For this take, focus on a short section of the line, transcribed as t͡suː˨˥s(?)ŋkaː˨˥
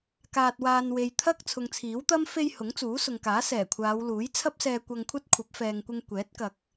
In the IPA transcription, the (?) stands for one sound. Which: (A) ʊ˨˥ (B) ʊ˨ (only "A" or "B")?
B